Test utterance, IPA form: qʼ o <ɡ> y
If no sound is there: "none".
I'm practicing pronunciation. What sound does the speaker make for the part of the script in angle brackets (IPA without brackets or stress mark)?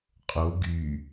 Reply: ɡ